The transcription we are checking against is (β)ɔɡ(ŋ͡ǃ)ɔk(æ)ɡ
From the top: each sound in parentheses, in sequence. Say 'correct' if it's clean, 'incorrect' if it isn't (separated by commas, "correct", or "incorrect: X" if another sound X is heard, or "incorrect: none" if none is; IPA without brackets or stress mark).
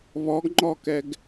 correct, correct, incorrect: ɛ